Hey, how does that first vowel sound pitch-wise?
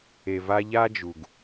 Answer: low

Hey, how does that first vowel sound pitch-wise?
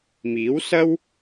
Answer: rising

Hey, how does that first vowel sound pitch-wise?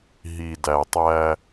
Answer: low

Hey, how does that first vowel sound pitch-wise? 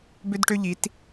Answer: high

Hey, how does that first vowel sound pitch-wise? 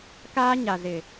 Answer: high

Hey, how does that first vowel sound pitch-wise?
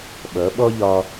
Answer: rising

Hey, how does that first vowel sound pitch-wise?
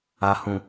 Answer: low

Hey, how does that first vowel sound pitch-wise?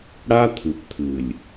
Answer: high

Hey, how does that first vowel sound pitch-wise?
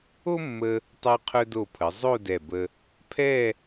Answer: high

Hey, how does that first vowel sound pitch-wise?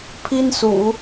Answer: high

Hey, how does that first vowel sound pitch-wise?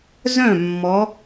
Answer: falling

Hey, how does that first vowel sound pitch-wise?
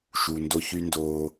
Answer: low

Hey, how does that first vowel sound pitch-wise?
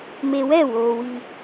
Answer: low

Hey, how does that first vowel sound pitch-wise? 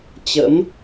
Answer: rising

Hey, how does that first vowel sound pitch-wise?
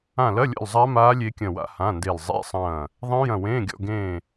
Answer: falling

